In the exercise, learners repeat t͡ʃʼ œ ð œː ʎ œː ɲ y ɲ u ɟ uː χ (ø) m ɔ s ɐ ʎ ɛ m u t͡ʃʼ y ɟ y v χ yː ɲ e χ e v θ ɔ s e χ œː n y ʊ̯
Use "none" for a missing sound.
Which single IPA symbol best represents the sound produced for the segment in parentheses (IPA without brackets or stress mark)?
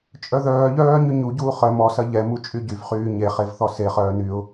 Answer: œ